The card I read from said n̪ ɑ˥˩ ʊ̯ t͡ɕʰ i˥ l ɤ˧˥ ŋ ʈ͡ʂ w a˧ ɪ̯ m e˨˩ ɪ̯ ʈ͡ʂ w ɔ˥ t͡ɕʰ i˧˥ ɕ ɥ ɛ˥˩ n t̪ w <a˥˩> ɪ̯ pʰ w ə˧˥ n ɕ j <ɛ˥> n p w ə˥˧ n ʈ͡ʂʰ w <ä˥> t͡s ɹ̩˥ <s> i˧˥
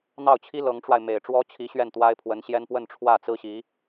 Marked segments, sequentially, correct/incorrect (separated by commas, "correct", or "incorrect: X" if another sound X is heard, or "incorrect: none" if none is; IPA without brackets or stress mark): incorrect: a˥, correct, incorrect: ä˥˩, incorrect: ɕ